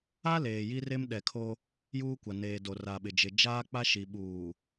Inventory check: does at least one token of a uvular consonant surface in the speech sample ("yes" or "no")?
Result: no